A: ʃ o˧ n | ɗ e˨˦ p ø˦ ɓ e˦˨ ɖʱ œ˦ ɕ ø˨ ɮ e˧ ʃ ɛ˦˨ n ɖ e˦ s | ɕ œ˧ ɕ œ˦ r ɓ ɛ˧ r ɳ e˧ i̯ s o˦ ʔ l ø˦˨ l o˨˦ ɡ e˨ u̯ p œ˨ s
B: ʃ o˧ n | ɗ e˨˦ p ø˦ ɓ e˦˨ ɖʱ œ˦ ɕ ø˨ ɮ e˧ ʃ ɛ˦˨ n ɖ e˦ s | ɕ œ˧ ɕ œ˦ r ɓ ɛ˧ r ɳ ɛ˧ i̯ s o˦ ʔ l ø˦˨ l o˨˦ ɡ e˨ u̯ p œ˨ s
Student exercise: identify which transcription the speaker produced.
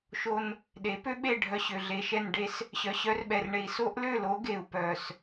A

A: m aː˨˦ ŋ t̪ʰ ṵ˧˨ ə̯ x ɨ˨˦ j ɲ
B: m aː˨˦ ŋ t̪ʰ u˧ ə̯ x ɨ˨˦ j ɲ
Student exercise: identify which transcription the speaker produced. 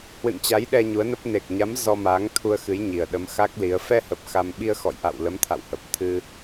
B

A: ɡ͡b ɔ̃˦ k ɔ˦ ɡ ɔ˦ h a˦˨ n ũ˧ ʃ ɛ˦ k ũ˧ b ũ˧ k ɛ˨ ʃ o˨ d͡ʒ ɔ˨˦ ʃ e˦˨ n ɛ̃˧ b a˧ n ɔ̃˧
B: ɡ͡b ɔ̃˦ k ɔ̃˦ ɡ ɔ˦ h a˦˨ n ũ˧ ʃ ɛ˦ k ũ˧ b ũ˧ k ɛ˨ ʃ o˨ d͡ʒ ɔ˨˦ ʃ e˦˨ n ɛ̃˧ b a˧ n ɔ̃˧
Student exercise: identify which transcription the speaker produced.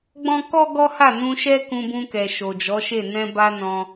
A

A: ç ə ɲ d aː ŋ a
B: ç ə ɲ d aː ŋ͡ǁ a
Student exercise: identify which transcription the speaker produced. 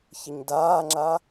B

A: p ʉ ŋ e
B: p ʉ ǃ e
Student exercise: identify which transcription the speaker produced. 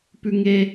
A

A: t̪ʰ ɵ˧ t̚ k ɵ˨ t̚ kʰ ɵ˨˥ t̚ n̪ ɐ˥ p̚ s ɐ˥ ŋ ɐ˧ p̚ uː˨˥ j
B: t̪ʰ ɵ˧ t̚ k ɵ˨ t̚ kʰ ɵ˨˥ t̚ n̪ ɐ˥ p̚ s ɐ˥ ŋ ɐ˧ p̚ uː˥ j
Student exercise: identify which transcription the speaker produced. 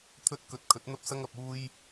B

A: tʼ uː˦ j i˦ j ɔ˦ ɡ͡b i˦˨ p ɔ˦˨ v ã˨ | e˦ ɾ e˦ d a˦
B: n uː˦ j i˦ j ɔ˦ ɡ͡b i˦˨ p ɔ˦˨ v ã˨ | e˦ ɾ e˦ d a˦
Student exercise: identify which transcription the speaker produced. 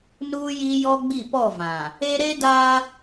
B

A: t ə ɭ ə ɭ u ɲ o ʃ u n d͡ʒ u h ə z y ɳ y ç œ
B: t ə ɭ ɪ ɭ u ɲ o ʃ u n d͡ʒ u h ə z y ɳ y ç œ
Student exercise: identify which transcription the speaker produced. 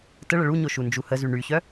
A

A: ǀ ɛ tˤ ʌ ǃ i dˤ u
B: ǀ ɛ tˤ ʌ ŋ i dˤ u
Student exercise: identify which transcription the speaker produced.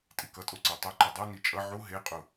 A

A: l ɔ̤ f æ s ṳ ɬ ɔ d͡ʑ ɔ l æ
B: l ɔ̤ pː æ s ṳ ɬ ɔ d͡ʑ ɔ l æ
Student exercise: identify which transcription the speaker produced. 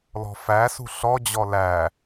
A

